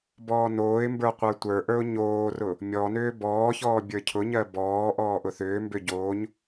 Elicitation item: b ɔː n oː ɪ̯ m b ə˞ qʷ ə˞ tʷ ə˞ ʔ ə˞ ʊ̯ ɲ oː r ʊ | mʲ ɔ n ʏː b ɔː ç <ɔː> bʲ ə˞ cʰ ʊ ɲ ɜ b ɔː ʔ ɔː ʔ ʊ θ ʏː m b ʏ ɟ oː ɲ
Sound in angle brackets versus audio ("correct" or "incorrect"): correct